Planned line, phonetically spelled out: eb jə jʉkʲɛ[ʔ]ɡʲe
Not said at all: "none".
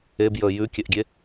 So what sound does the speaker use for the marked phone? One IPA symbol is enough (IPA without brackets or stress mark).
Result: ʔ